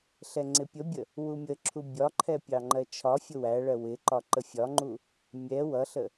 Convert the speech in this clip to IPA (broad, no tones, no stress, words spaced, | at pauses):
ɬɛŋ͡ǀɪpʲəbʲə | wumʲəǁʰu bʲɒǃʰɛ pʲɑŋ͡ǃɜt͡ʃʰɒfʲʊ wæɭɜ wɪǃɒ ǃəfʲɒŋ͡ǃu | mʲɛ wʌɬə